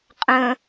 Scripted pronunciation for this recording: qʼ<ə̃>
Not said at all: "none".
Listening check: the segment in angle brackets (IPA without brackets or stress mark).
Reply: ə̃